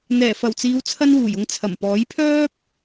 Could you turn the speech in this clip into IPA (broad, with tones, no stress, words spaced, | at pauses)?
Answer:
n̪ɛː˨˩fɐ˨˩wt͡siː˨˧wt͡sʰɐ˧n wuː˨˩j ʊ˧ŋt͡sʰɐ˨˩mpɔː˨˥j pʰœː˥p̚